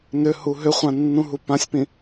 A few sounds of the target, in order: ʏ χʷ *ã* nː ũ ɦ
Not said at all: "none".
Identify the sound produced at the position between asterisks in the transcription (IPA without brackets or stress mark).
ã